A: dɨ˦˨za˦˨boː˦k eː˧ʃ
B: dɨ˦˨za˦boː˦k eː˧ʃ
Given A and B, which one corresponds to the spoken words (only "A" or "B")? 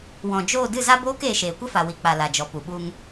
B